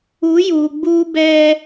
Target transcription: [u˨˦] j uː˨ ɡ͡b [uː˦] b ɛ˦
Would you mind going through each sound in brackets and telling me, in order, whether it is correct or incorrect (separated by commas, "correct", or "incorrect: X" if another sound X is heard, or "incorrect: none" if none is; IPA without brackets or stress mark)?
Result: correct, correct